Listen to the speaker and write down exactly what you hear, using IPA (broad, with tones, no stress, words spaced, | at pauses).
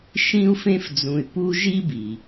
ʃĩ˦u̯fẽ˦fd͡zũ˨y̯ pu˦ ʒi˦bi˩